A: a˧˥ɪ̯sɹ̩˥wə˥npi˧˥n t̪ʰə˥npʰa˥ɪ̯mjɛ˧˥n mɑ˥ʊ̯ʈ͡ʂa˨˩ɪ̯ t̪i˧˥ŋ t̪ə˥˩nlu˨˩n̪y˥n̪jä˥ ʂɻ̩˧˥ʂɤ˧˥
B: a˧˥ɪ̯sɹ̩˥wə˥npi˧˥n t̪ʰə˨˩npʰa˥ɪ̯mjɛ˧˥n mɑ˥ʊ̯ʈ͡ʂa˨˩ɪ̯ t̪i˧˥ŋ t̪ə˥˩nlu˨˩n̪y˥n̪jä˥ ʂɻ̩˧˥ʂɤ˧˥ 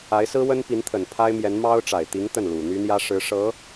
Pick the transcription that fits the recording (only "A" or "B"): B